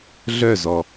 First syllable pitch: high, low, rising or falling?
falling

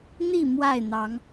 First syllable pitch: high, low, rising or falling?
falling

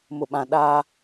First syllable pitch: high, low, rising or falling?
low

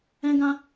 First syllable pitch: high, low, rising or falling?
high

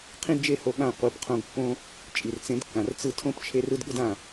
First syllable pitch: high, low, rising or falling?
high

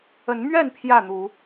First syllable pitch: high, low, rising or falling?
rising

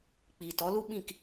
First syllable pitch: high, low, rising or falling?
low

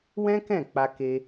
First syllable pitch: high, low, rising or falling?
high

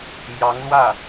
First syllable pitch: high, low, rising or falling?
rising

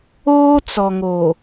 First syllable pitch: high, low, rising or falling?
high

